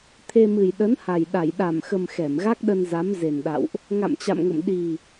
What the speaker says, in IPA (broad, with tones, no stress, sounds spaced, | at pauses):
t̪ʰ e˧ m ɨ˨˩ j ɗ ə˨˦ n h a˨˩ j ɗ a˧˩ j ɗ a˧˩ m x ə˨˩ m x ɛ˧˩ m ɣ a˦˥ k̚ ɗ ə˧ n z a˨˦ m z e˨˩ n ɗ a̰˧˨ w ʔ | ŋ a̰˧˨ m t͡ɕ a̰˧˨ m ŋ ə̰˧˨ m ɗ i˨˩